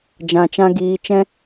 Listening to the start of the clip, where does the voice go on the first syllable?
low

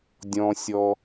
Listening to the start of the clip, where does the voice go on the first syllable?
low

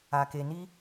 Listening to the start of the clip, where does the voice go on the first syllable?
low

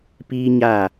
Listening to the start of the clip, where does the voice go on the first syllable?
high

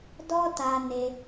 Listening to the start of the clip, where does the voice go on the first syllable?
high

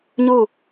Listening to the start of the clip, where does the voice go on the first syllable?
falling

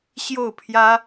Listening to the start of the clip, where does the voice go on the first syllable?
falling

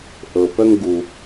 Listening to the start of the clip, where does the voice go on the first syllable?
low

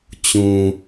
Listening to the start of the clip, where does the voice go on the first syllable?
low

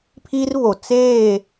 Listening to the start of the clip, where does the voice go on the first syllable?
high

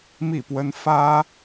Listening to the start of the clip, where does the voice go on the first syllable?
falling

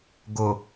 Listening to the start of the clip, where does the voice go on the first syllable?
low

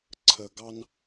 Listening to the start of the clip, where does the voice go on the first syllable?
low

